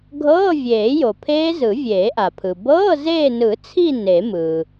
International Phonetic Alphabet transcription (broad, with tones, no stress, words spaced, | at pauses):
ɡʱɤː˧˥˧vʲeː˨˩˦jo˩pʰeː˦˥z ɯ˨˩˦vʲeː˨˩˦ʔa˩pʰɯ˩ bɤː˧˥˧zeː˦˨nɯ˨˩˦t͡sʰi˦˨ ne˨˩˦mɯ˩